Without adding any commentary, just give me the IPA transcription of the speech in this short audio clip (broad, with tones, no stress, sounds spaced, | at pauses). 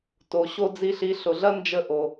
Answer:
t o˧ ɕ o˦ d͡z i˦ ɬ i˧ ɬ ʊ˨ ɮ ɐ˦ n d͡ʒ ə˦ ʔ o˧